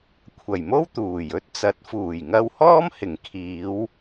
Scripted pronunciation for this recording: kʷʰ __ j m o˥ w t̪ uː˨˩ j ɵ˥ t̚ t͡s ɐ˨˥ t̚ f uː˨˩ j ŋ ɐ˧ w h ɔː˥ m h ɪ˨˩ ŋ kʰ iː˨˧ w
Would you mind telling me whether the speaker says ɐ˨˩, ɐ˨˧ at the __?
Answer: ɐ˨˩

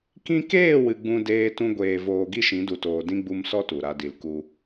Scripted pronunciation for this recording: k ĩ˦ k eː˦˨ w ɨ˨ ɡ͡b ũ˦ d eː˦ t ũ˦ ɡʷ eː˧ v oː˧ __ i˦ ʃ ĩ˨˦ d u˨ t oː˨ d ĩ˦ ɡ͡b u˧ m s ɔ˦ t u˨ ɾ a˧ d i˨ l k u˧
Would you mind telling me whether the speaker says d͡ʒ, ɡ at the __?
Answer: ɡ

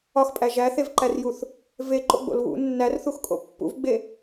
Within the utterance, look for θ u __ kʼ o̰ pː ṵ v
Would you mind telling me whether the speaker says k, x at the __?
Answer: x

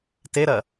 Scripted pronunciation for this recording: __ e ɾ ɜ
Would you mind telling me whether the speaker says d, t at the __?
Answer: t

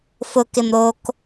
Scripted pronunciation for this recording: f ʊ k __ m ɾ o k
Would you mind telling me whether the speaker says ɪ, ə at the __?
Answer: ɪ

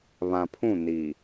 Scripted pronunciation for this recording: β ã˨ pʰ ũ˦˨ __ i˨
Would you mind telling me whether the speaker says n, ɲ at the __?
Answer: n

